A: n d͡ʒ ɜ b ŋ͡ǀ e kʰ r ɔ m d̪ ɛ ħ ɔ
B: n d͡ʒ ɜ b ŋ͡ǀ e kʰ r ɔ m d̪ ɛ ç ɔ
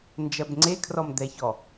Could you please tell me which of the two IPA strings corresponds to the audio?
B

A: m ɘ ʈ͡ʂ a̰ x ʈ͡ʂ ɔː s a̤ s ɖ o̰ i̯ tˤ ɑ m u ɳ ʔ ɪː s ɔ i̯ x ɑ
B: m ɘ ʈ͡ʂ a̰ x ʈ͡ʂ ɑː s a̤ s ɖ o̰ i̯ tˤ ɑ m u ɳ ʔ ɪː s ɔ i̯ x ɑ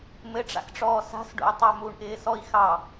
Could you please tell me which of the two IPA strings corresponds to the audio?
A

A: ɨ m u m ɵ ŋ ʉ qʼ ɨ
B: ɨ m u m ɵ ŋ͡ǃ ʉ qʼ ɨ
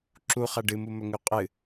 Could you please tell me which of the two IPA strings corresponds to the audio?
A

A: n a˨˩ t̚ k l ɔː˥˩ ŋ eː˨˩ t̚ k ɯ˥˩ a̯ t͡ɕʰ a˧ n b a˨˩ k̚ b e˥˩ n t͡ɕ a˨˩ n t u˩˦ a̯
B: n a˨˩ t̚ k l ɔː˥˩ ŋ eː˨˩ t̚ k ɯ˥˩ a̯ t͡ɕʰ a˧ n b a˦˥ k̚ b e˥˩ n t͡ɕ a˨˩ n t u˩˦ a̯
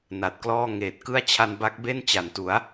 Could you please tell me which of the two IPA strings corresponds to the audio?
B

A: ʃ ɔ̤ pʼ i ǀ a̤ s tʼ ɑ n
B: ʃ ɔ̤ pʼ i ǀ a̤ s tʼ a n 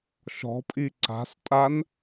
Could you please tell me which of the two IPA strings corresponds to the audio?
B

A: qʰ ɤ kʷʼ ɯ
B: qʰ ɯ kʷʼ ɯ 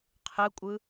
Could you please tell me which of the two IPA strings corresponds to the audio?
B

